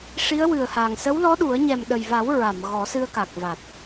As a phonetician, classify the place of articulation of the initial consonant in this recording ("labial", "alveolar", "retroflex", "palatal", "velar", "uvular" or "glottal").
retroflex